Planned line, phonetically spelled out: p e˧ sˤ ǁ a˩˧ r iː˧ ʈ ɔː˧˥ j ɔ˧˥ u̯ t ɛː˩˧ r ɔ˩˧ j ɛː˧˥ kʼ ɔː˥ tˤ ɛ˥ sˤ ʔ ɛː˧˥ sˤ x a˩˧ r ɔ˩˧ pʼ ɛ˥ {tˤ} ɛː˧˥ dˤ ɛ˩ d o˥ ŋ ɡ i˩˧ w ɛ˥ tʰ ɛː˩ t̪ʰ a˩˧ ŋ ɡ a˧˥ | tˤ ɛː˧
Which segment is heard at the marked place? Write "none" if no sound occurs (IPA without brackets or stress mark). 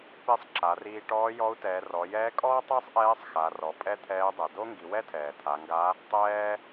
t̪ʰ